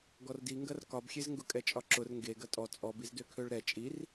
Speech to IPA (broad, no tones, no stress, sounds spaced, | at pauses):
ɡ ɔ r d i ŋ ɡ ɐ r k ɒ b xʲ e z ŋ ɡ ʊ kʼ ɛ t͡ʃʼ ɒ ǁ ʊ r ŋ ɡ e ɡ ɐ tʼ ɔ t͡sʼ ɔ b i z d ø kʰ ø ɭ ɾ ɛ t͡ʃʼ i r